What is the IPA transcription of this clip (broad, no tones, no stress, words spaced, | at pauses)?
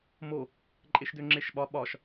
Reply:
mo | ǃʼeʃdøŋ͡ǁeʃɓɒ ɓɒʃ